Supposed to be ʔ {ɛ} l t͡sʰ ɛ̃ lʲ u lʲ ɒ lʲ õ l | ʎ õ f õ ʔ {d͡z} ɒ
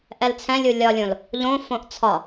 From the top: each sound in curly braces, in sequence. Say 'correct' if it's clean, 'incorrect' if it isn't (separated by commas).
correct, incorrect